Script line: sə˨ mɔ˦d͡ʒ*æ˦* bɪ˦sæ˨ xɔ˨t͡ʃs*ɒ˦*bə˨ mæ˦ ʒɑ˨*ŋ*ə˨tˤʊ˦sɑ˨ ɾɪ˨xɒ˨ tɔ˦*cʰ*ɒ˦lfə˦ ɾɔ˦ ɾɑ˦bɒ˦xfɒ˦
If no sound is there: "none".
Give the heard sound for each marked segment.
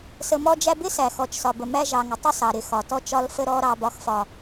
æ˦, ɒ˨, ŋ, t͡ʃ

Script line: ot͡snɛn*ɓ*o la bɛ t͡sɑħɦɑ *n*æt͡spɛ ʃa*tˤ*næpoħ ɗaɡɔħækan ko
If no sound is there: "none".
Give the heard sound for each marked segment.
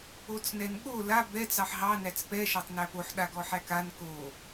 ɠ, n, tˤ

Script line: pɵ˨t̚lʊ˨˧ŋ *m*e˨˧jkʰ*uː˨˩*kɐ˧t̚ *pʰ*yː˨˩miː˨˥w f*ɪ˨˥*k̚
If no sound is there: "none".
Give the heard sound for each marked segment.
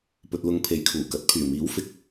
pʰ, uː˨˩, pʰ, ɪ˨˥

